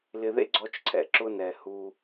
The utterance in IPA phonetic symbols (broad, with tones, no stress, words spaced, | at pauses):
lɪ˨ðḛ˦ ɡ͡ǀɔ˦t͡ʃǀʰɛ̰˨ ǁʊ˦nɛ˨hu˦